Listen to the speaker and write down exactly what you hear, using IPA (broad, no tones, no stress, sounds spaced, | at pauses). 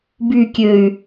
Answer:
b y kʲ ø y̯